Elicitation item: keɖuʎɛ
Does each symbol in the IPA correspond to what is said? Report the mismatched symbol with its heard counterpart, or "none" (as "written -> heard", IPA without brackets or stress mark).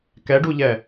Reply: e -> ɛ